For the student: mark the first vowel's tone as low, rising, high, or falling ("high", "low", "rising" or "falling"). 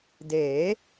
rising